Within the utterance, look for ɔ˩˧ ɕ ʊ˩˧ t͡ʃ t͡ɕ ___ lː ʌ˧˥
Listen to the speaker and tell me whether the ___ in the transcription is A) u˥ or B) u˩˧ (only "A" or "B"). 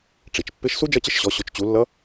B